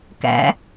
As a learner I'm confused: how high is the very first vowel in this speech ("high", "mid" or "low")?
low